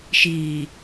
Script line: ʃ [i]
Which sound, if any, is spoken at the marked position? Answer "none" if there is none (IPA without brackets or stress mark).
iː